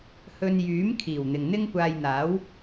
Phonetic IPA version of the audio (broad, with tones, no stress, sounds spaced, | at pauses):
h ɵ˧ n j yː˨˥ m kʰ iː˨˩ w n̪ ɪ˨ ŋ n̪ ɪ˥ ŋ kʷ aː˧ j n̪ aː˨˥ w